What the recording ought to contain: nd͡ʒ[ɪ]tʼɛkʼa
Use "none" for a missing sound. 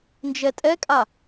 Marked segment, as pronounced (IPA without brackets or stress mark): ɛ